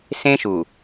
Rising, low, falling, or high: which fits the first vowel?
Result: high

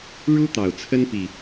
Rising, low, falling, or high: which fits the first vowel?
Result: high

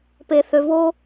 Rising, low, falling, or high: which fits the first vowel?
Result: low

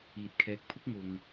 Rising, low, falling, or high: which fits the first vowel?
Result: low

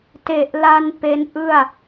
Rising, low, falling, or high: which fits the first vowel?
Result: low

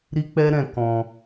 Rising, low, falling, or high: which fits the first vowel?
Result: high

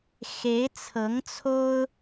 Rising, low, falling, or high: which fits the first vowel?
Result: rising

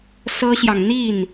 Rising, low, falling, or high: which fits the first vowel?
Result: high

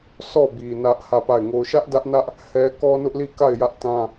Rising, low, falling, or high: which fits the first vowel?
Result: falling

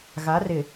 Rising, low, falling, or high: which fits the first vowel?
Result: rising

